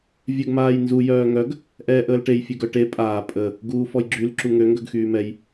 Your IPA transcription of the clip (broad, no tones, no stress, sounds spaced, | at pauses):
vʲ œ ɡ m aː j n z u j œː ŋ œ ɡ | ʔ ɛː ʔ əː l ʈ e j fʲ ø ɡ œ ʈ e pʼ aː pʼ ə | ɡ uː f ɔ j ɡ͡ǁ y l ǁ u ŋ ø ŋ ɡ œ ɡ x yː m ɛ j